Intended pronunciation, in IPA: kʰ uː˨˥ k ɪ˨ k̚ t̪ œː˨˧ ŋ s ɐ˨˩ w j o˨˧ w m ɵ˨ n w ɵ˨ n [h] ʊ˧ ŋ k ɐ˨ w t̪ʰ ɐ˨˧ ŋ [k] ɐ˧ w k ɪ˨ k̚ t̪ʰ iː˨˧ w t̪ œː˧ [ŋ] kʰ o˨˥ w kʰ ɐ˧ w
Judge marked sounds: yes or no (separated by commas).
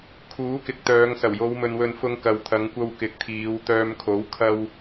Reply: no, no, no